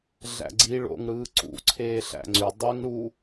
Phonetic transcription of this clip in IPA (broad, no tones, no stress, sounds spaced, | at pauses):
ɮ æ̰ ɡ͡ǀ i ɭ o̰ ŋ ɽ ɯː ǀ ṵ ǀʰ eː ɬ æ̰ ŋ͡ǀ y dˤ ø ŋ ɽ u